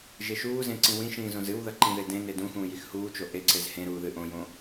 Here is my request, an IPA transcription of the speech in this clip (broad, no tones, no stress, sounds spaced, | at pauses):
ʒ e ʃ uː z ẽ ǀ ĩ w ĩ ʃ ĩː z õ z ɨ w ð ɐ ǃ ĩ ð e d ẽ n e d ũ x ũː j i x h uː t͡ʃ o ʔ e ǀ e z h ẽ ɾ uː ð ɨ ʔ õ j õ